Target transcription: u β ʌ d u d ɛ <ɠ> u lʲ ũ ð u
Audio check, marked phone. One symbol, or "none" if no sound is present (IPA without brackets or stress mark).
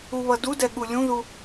ɠ